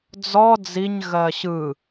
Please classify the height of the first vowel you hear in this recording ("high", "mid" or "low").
mid